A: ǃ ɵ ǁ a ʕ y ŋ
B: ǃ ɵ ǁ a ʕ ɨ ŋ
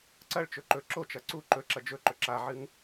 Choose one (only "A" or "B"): B